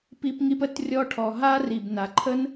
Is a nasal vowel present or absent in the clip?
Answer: absent